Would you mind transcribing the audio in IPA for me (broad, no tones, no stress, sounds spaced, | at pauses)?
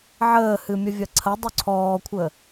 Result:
ʕ əː h ɨ mʲ ə vʲ ɐ ǀʰ ɐ dˤ u ǀʰ ɔː kʷʰ ə